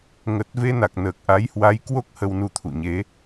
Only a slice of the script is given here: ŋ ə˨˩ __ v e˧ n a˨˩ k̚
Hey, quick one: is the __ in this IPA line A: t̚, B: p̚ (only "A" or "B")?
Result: A